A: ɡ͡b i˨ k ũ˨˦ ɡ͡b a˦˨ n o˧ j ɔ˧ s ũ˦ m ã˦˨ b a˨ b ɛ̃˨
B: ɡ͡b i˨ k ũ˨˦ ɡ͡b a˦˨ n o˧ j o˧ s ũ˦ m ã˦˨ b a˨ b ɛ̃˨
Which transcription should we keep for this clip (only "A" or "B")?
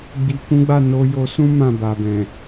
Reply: B